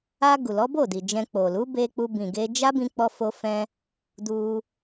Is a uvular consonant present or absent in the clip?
absent